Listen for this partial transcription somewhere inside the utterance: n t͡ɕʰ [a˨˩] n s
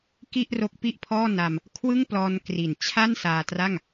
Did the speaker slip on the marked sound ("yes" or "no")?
yes